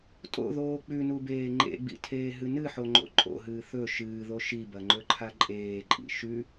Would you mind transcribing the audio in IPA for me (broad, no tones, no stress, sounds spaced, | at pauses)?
tʼ o̰ ð oː k͡p ʉ n u b eː ŋ͡ǃ ḛ ɡ͡b ḭ tʰ eː ɦ ɨ n ɨ ħ o ŋ͡ǃ o̰ ǃʼ o̰ ɦ ɨː θ ɵ ʃ ɨː ð o ʃ i b ɐ ŋ͡ǃ ɵ ǃʰ a ǃʼ eː ǃʼ ḭ ʃ ʉ